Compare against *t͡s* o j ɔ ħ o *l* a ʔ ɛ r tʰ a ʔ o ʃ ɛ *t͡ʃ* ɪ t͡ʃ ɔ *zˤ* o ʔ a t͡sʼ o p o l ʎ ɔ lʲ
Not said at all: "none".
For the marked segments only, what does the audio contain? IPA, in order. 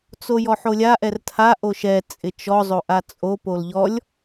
t͡s, lʲ, t͡sʼ, zˤ

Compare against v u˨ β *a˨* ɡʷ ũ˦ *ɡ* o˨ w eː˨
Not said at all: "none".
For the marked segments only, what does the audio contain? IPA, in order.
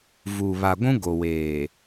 a˨, ɡ

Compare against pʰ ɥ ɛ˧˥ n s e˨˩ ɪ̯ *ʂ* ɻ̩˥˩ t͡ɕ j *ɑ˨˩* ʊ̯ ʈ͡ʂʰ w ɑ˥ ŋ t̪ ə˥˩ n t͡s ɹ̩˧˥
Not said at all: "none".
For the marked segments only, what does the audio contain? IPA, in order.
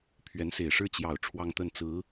ʂ, ɑ˨˩

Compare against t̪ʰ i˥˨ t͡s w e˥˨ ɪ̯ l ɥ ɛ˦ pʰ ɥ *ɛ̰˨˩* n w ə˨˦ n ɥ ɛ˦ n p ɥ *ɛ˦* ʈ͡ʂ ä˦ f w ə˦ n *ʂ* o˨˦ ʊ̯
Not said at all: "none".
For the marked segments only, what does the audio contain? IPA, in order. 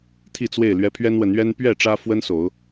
ɛ˦, ɛ˥˨, s

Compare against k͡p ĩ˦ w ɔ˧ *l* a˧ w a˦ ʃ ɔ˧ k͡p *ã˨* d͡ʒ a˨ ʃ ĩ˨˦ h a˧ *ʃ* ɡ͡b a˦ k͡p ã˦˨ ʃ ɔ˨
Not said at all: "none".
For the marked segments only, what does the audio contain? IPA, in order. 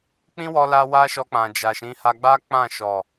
l, ã˨, none

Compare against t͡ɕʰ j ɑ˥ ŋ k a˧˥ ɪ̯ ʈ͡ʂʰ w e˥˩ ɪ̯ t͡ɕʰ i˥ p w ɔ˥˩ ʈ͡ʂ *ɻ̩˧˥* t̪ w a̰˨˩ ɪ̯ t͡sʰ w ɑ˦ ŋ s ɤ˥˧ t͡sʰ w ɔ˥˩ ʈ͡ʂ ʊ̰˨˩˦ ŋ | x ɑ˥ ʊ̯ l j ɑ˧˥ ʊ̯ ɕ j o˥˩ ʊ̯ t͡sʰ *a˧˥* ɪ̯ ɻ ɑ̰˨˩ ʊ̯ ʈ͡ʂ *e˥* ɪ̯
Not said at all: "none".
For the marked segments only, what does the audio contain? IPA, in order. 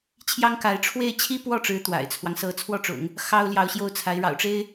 ɻ̩˧˥, a˧˥, e˥

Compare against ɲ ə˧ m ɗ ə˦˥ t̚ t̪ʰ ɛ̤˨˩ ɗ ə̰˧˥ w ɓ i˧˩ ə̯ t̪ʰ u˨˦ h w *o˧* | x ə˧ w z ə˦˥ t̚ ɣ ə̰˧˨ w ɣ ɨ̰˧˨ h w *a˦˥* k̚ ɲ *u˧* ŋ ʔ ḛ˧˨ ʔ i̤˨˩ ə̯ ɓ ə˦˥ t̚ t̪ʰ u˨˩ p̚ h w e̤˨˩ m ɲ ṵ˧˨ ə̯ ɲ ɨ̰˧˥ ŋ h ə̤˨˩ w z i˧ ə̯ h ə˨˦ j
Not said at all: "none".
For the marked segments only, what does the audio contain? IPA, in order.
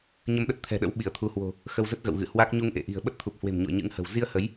o̤˨˩, a˦˥, u˧

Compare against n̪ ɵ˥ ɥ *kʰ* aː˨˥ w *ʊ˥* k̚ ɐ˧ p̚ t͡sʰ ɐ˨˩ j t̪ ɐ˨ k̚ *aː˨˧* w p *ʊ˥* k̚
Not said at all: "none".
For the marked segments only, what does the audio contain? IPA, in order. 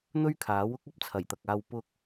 kʰ, ʊ˥, aː˧, ʊ˥

